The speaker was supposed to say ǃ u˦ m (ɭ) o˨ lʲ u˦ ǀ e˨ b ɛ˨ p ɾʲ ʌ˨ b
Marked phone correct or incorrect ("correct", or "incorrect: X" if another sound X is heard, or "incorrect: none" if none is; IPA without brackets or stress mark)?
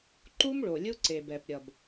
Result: correct